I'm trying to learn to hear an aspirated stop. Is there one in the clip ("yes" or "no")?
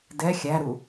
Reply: no